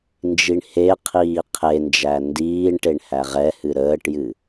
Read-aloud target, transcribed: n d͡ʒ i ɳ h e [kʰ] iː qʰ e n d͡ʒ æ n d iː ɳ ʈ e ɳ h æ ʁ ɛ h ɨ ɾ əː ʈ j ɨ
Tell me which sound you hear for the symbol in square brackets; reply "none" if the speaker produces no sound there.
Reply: qʰ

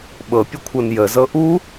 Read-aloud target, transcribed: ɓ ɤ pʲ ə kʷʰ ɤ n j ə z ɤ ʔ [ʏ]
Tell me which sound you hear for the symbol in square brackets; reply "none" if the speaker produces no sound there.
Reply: u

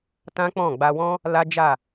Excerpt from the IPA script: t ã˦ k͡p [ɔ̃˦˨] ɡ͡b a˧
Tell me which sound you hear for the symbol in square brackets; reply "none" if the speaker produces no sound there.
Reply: ɔ̃˦˨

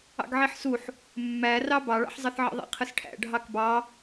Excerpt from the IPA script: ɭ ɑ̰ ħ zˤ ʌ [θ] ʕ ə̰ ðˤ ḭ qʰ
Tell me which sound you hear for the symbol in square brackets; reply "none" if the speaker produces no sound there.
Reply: θ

